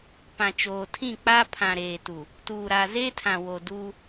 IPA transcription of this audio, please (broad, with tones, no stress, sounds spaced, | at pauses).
p ã˨ t͡ʃ oː˨ tʰ ĩ˦˨ k͡p a˦ pʰ ã˨ ɾ eː˨ t u˨ | t uː˨ ɾ a˨ z eː˦ tʰ ã˨ w o˨ d uː˦